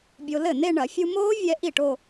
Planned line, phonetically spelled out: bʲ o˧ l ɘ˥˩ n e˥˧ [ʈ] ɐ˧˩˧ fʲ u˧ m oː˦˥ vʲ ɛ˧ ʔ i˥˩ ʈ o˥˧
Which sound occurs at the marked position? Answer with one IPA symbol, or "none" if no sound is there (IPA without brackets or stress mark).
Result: ɳ